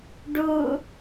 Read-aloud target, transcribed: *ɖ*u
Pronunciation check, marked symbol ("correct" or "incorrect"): correct